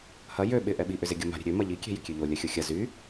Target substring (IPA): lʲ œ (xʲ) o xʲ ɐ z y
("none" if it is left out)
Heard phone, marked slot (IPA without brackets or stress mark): xʲ